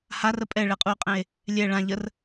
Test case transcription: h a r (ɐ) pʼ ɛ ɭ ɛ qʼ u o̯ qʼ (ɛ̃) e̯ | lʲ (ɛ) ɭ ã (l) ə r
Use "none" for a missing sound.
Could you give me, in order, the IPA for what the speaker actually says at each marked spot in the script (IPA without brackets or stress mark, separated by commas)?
ə, ɛ̃, ɛ, ʎ